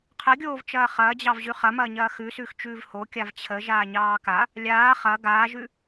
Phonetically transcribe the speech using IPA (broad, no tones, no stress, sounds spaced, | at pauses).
qʰ ə ɡʲ oː v t͡ʃ ɐː χ ɐː d͡ʑ ɑ v ʑ ʉ χ ɐ m ɐː ɲ ɐː x ʉ s ʉː x t͡ʃ ʉː v h o kʲ a v t͡ɕʰ ə ʒ aː ɲ ɑː k a | lʲ aː χ ɐ ɡ aː ʒ ʉ